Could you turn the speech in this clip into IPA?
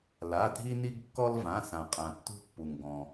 l a˩˧˩ dʱ i˦ n i˦ ɡ kː ɔ˦ l v ã˩˧˩ s ã˩ qʼ ã˩ tː ṳ˦ pː u˩ ŋ ɡ ɔ̃˩

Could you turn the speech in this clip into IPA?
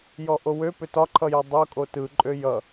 j ɔ ʔ o w ø p ø t ɒ ǃʰ ʌ j ɔ dˤ o kʼ o t ɯ ǃʼ ø j ʌ

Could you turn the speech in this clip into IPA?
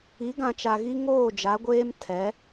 i˨˦ ɡ ã˨ t͡ʃ a˨ ɣ i˦ ŋ oː˦˨ d͡ʒ a˨˦ ɡʷ eː˦ m tʰ ɛ˨˦

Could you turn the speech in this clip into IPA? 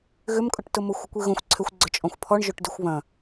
ɣ ʏ m kʼ ʊ ʈ t ʊ m ʊ xʷ ɪ kʷ i ɣ õ xʷ ǀʰ ʏ xʷ ɡ͡ǀ ʏ t͡ʃʼ ɔ̃ xʷ pʰ ɔ ɳ ʒ o ʈ d y xʷ β ɐ̃

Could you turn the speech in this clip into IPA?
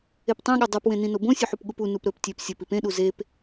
e p tˤ ẽ ɠ ɘ dˤ o p w ẽ n ĩ n o b õ sʲ u ħ u p ɠ u p u n u p ɾ ɵ p tʲ e p sʲ ɘ p i p ẽ ɗ u z e p

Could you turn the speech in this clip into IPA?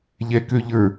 ʎ ɛ k ø ʎ ə˞

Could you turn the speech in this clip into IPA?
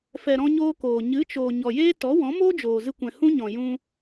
f ɛ˨ ɾ ɔ̃˦ ɲ oː˦ k oː˨ ɲ ɨ˨˦ t͡ʃ oː˨ ɲ ɔ˨ j eː˦ t ɔ˨˦ w ɔ̃˨˦ m oː˦ d͡ʒ oː˨ z ɨ˧ kʷ ɛ̃˨ h ũ˦ ɲ ɔ̃˨ j ũ˧

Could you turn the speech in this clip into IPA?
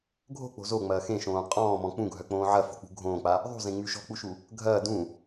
ɡʱ o̤ k͡p o̤ z o ŋ͡m ɐː x ẽ ʃ õː qʼ ɔ̃ː m ɔ̃ k͡p ũ ɡʱ œ k͡p õː ʕ ɐ f o̤ k͡p ṳ ɡʱ õː k͡p a | ðˤ ṳ z ẽ ŋ͡m y ʃ ɔ̤ k͡p u ʃ u | ɡʱ ɐː d ũ

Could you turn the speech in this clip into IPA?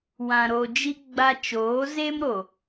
w ã˨ ɾ o˨ d͡ʒ i˦ ɡ͡b a˦ t͡ʃ oː˨˦ z e˦ m ɾ o˨

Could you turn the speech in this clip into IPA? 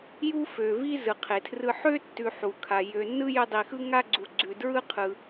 j u˥ f ø˩ v i˦ z ɯ˩ qʰ e˩ tʰ r ɯ˦ ħ ø˥ tː ʉ˨ ħ u˩ kʰ a˩ j ø˨ nː ɯ˥ j ø˦ dˤ i˨ x ɯ˥ ŋ a˥ ɡ͡ǀ u˨ ɡ͡ǀ ʉ˨ d ɹ ɯ˥ qʰ ɯ˩

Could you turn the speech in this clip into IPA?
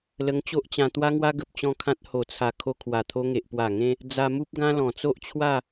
l ə˧ ŋ t͡ɕ o˦ ʔ t͡ɕ ã˧ t̪ w a˦ ŋ w a˦ ɡ ə˨ p̚ t͡ɕ ɔ̃˥˧ kʰ ã˦ t̚ h o˨˩ t͡sʰ a˨˩ kʰ o˧ kʰ w a˨˩ t̪ʰ o˧ ŋ e˨ ʔ p w a˨˩ ŋ ẽ˧ | d͡z a˧ m u˦ p̚ ɡ ã˦ l ɔ̃˨˩ t͡s o˦ ʔ t͡ɕʰ w a˥˧

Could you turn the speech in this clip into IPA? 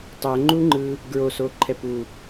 tˤ ɛ ŋ͡ǃ u ŋ͡ǃ ɯ | ɡ ɹ o s o ǃʰ ɛ p u

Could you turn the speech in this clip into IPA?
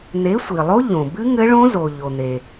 n̪ e˨˥ sʷ i˩ lˠ o˦˥ ʎ õ˩ b ɨ˦˥ ŋ ɘ˦˥ ɭ õ˦˥ z o˩ ʎ o˩ n̪ e˩

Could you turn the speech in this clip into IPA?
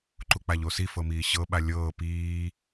ǃ u k͡p a ʎ o s i f ɤ m iː ɕ ɤ ɓ a lʲ ɤː p iː

